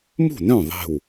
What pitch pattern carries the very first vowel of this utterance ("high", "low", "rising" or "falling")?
falling